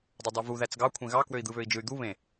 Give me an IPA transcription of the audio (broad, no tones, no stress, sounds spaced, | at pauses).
dˤ o dˤ æ v u ð æ t͡s ɡ ɑ kʷʰ ẽ ɣ ɑ k w ø i̯ d̪ ɯ β ø i̯ d͡ʒ ɯ y̯ d̪ u β ẽ